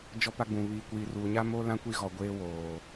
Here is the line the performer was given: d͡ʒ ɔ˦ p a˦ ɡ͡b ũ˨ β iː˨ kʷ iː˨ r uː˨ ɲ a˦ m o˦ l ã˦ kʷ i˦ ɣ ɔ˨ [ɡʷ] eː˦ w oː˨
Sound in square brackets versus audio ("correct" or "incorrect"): correct